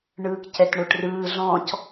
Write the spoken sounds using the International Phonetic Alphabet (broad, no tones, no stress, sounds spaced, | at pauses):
ɳ ɯː k c ɛ t ɳ o ʈ r ɯː ɮ ɔ̃ c